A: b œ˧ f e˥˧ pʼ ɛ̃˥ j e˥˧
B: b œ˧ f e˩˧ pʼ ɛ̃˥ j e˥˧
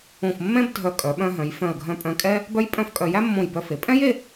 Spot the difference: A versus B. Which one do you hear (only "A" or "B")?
B